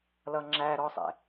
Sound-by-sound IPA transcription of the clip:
lʌŋ͡ǁæɾɔsˤɛ̰

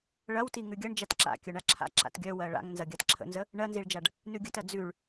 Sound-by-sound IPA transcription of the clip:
ɭɐwti ŋʉɡʲɐɳ d͡ʒatǁa̰ kʲœɳaǁʰa̰ ǁa̰tɡʲœ wɜɭa̰ŋnzɐ ɡʲatǁʰə̰nzə | ɳɜnziɭd͡ʒaɖ | nʉɡʲətɜ d͡zʉɭ

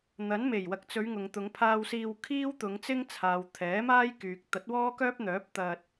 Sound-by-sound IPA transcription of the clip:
n̪ɐ˨˥n me˨˩jwɐ˨k̚t͡sɵ˨˧ɥ ŋʊ˨ŋt̪ʊ˨˧ŋpʰaː˧wsiː˧w kʰiː˥wt̪ʊ˨˧ŋt͡sɪ˥ŋt͡sʰaː˨w t̪ʰɛː˨˥maː˥jkyː˨k̚ t̪ɐ˨˥t̚wɔː˥kœː˥p̚n̪œː˨˥p̚ t̪ɐ˧t̚

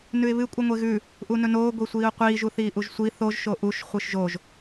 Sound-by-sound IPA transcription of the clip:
nʉɪ̯βɨ kʷʼɨŋʷeɣʉ | ʔunɵnoː ɡʷisʷiːʊ̯qʷiː ʒuθiːʔuʒsʷi θoʒ ʃoʔuʃ χʷɨʃʒoʒ

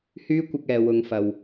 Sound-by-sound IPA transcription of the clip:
hyː˥kʷɪ˧k̚ ɛː˨wʊ˨˧ŋfɐ˨w

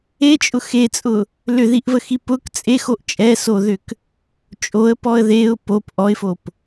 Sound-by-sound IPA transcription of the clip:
et͡ʃʼʊ xet͡sʼʊ | lʏðiʔvəxi pʊk t͡sʼexoʔ t͡ʃʼɛsoðʏk | t͡ʃʼoə̯pɔə̯ ðeʊ̯ pop ʔɔɪ̯fop

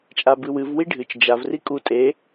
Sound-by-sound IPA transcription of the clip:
t͡ʃʼabɨwɨv wiɖʱɨt͡ʃ d͡ʒav rikʼu tʼe

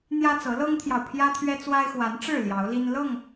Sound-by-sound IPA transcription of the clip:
n̪jä˦t͡sɤ˨˦lɤ˦ŋt̪ʰjɑ˨ʊ̯ pʰjä˦t̪ʰɥɛ˦t͡swa˦ɪ̯ xwa˨˦nʈ͡ʂɻ̩˥˨ ljɑ˨˦ʊ̯li˦n lɤ˥˨ŋ

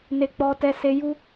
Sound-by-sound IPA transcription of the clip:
ne˦k͡pɔ˦ tɛ˦se˦ ju˦

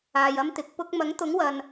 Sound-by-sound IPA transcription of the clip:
aː˨jɐ˥mt̪ɪ˨˥k̚ pʊ˧k̚mɐ˨˥ŋt̪ʊ˨˥ŋwɐ˨n

